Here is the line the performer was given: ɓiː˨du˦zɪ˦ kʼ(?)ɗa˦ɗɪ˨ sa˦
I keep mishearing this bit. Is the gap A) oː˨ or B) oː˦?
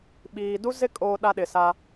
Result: B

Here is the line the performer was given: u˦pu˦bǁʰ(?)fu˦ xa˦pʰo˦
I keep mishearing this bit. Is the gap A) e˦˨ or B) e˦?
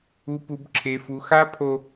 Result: B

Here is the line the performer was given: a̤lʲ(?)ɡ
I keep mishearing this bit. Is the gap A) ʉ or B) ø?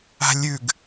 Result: A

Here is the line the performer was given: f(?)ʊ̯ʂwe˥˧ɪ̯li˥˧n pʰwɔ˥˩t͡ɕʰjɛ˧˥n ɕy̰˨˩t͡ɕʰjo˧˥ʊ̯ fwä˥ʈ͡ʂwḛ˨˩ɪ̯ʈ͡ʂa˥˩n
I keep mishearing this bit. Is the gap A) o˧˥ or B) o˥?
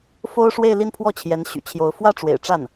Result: B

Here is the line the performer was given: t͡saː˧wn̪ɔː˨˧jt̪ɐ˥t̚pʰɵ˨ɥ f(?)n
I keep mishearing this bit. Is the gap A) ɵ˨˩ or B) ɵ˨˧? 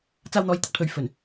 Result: A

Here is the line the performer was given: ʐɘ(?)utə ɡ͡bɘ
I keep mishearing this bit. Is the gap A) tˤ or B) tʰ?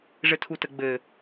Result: B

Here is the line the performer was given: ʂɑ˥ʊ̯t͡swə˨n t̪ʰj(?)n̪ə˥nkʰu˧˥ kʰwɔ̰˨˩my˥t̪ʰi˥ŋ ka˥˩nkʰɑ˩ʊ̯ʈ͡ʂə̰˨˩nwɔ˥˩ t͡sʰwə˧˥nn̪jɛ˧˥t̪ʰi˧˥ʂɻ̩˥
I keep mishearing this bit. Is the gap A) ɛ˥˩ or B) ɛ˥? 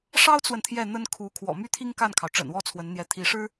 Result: A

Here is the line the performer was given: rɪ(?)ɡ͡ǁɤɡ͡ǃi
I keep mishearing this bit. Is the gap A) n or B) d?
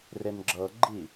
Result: A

